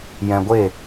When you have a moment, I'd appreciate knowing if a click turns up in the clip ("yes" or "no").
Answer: no